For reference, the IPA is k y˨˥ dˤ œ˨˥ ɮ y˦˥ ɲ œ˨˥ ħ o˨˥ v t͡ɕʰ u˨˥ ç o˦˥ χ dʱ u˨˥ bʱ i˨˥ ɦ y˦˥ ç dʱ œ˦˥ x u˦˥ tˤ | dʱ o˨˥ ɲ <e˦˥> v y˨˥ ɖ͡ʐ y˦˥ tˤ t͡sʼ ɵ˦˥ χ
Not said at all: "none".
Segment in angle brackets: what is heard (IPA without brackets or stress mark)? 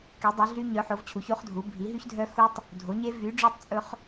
e˦˥